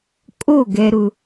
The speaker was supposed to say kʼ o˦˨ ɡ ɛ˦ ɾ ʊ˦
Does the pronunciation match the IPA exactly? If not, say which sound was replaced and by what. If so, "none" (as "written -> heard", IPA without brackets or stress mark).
none